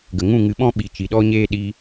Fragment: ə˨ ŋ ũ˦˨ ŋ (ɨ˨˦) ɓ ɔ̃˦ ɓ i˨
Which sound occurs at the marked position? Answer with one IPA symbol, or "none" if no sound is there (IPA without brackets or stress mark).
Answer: ɨ˨˦